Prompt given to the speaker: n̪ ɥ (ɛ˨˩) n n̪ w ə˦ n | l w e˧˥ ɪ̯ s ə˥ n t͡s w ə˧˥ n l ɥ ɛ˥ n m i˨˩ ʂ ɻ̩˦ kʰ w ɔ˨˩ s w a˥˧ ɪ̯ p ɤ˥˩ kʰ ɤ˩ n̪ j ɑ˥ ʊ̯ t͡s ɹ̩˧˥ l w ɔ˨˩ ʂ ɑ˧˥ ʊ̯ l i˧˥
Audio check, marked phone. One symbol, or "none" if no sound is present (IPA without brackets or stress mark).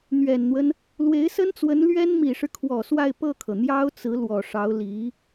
ɛ˨˩